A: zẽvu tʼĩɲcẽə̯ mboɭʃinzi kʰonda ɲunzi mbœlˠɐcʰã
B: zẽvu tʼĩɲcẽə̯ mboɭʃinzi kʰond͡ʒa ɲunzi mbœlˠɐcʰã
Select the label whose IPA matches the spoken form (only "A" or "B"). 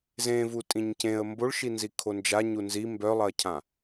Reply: B